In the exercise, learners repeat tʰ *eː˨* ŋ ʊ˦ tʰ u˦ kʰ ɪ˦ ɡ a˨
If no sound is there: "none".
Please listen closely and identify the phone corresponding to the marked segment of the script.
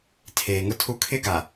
eː˨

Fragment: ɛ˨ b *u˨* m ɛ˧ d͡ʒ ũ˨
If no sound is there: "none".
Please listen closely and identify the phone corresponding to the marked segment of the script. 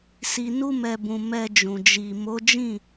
ũ˨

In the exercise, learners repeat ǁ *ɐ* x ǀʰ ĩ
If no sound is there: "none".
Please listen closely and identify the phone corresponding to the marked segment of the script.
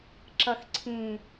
ɐ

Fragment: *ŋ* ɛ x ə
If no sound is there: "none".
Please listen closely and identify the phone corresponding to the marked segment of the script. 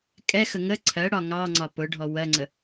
kʼ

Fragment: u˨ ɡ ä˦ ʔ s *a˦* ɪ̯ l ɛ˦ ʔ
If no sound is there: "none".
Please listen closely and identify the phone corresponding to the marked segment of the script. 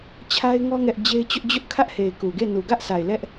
a˨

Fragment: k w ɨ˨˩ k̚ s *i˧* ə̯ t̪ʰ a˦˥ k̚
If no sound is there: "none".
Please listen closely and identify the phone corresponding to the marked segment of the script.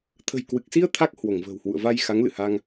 i˧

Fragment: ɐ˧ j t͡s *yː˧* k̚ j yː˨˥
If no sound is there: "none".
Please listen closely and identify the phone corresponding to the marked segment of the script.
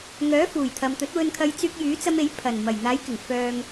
yː˧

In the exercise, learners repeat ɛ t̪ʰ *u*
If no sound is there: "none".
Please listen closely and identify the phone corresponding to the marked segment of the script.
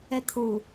u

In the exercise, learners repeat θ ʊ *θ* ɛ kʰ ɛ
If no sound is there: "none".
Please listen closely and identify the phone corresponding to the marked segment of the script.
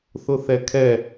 θ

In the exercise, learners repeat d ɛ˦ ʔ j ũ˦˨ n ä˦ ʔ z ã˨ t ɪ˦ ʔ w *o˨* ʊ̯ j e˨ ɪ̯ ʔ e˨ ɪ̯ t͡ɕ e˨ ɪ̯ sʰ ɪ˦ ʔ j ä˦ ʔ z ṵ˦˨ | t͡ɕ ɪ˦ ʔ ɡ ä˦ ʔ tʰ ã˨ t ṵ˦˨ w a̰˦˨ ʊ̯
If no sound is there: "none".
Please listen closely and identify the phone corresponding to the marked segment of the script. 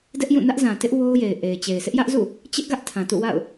o˦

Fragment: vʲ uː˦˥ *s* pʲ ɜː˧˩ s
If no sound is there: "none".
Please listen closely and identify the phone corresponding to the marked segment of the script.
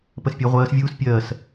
s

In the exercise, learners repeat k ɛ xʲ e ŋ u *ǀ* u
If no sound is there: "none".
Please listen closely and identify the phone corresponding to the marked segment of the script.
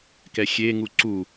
ǀ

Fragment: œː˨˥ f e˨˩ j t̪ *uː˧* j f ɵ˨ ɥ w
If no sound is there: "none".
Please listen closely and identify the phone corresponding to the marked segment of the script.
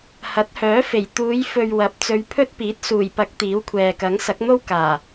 uː˨˧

